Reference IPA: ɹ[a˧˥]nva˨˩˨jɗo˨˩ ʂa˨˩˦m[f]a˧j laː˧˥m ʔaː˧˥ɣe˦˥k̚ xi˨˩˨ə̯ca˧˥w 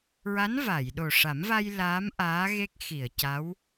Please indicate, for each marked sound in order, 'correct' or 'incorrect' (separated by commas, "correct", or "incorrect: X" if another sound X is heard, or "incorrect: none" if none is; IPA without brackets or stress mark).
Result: correct, incorrect: v